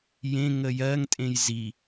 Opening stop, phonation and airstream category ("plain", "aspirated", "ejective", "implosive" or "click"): ejective